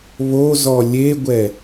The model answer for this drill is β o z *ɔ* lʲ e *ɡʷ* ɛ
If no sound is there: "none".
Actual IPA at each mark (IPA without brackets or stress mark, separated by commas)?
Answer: ɔ, ɡʷ